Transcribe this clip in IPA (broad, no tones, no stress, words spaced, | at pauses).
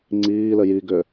ŋ͡ǀiːlɘ jiɡʏː